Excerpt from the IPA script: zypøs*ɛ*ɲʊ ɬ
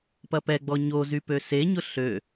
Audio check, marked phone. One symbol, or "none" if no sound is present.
e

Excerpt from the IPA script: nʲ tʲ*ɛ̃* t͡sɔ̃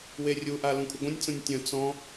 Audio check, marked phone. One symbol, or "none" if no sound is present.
ə̃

